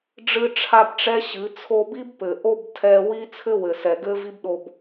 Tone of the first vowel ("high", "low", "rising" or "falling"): high